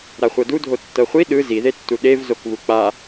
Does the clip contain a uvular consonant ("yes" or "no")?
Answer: yes